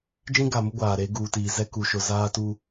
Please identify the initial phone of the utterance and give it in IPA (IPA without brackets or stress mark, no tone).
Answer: d͡ʒ